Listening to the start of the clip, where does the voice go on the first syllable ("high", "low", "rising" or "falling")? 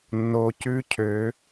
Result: low